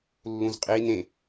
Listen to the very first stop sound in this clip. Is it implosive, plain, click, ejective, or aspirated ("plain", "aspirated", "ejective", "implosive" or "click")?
ejective